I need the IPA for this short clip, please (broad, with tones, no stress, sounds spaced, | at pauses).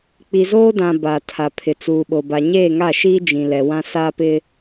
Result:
k͡p i˨ z oː˦ d ã˨ b a˨ tʰ a˨ pʰ ɪ˨ t͡s uː˨ ɓ o˨ b a˨ ɲ eː˦˨ ŋ a˦˨ ʃ iː˦ d͡ʒ ĩ˨ l ɛ˨ w ã˦ s a˦ p ɪ˦